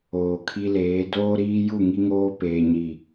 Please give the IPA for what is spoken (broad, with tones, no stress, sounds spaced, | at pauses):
oː˨ kʰ i˦ l eː˨˦ d oː˦ ɾ iː˦ j u˦˨ ŋ i˦ ŋ oː˦ p eː˨ ɲ i˨